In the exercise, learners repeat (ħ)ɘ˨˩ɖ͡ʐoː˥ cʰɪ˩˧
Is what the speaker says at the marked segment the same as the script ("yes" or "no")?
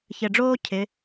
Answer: no